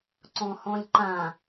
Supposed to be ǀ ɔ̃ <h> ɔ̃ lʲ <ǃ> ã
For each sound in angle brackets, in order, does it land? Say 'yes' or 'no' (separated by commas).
yes, yes